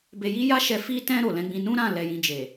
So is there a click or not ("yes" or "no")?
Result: no